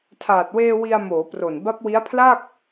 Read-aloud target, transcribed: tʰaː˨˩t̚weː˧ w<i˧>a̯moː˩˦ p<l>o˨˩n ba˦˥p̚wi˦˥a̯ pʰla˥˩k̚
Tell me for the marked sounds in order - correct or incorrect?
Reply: correct, incorrect

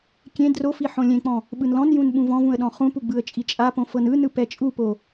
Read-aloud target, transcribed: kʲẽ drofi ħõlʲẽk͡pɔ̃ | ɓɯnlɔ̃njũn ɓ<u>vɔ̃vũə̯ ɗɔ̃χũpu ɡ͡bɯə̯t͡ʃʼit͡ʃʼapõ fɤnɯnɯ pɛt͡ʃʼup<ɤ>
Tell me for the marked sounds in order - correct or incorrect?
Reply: incorrect, incorrect

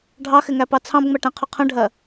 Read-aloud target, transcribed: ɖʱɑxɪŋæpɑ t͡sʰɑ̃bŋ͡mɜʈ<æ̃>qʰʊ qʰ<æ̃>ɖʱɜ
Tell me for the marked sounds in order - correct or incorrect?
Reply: correct, incorrect

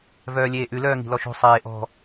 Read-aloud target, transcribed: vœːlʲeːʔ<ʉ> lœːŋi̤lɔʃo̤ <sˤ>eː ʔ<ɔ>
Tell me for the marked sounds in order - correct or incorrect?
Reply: correct, correct, incorrect

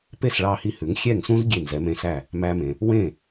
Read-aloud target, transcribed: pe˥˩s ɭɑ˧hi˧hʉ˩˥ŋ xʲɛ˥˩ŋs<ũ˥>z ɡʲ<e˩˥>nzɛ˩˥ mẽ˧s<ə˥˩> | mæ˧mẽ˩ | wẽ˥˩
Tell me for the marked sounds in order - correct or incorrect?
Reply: correct, incorrect, incorrect

